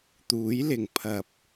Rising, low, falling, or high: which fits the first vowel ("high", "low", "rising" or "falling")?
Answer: rising